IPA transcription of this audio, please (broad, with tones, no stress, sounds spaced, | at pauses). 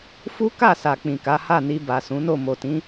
f u˦ k a˦˨ s a˨ k͡p ĩ˨ k a˨˦ h a˦˨ n i˧ b a˨ s ũ˨˦ n o˦˨ m o˨ t ĩ˨˦